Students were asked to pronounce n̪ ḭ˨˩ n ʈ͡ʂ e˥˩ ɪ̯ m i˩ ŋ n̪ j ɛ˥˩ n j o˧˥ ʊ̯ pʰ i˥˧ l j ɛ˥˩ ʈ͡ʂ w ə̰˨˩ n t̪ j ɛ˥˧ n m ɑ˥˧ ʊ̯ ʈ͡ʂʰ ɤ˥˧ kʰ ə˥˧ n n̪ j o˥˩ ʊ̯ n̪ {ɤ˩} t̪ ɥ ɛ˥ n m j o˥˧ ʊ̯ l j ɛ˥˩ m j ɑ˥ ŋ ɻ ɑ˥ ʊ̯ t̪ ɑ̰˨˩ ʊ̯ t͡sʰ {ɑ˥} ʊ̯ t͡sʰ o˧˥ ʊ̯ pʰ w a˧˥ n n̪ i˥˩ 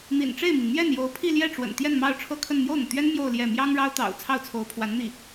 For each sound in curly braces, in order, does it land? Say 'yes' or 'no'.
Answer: yes, no

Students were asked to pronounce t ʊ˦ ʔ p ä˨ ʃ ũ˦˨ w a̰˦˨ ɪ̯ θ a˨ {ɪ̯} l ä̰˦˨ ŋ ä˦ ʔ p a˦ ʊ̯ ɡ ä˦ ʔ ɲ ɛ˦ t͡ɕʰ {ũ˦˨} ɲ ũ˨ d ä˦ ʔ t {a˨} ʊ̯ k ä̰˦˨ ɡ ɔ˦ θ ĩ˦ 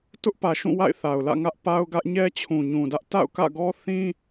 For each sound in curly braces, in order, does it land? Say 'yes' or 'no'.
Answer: no, no, no

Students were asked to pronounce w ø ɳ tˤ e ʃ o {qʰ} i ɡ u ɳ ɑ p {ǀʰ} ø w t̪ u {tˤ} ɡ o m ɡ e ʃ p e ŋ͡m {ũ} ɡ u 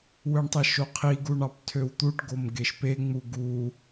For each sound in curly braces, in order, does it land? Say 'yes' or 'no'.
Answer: yes, no, no, no

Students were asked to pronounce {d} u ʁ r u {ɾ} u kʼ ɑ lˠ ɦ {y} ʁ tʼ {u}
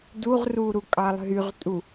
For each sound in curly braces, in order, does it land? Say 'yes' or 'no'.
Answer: yes, yes, yes, yes

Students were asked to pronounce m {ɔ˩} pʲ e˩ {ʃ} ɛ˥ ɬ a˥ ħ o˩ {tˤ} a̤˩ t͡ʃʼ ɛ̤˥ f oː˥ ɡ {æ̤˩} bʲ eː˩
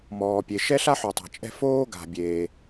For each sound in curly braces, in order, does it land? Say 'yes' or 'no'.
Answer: no, yes, yes, no

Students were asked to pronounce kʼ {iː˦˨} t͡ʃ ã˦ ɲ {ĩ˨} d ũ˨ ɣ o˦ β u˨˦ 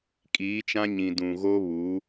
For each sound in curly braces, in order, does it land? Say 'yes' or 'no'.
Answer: no, yes

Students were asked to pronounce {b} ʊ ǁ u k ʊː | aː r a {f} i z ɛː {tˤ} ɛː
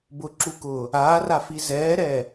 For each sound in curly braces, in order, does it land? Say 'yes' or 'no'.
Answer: yes, yes, no

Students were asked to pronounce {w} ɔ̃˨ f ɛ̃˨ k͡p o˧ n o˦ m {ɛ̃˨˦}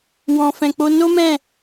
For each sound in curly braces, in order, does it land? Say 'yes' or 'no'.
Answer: yes, no

